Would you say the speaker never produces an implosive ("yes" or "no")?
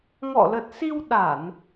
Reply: no